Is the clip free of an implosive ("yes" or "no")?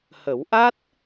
yes